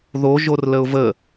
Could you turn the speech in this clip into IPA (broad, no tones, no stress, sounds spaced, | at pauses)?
ð o ʒ o r l ə ʊ̯ v ə